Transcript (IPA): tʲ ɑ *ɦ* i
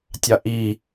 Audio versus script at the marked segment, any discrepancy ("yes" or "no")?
yes